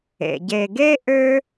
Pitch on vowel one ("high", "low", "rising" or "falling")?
low